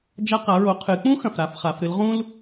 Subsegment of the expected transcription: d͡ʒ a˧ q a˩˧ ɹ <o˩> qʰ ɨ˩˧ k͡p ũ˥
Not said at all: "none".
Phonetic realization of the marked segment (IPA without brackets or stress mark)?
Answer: o˩˧